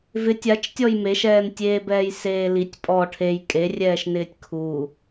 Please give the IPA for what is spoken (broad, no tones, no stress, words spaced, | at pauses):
vɪtʲ at͡ʃtʲɔj meʃɛːntʲeːbɛːj seːlitʲ pʼɔ ʈʰej kʼerʲɛːʃnɪːtʲ kʰu